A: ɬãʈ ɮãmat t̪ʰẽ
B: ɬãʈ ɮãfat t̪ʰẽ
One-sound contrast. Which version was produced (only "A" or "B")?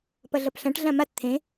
A